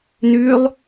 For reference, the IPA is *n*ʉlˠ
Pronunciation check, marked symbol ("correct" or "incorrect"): correct